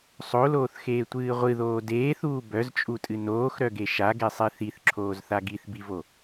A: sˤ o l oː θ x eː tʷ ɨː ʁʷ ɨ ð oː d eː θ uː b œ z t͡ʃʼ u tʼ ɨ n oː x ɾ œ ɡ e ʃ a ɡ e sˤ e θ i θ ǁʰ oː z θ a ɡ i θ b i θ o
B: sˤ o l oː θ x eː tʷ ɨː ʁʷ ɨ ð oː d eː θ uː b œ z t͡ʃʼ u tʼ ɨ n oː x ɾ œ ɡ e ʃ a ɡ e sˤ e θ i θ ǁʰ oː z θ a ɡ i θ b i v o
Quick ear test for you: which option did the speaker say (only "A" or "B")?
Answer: B